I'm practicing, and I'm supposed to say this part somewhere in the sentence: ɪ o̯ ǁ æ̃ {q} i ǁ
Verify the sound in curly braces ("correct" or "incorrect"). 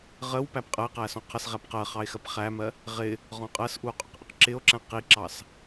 correct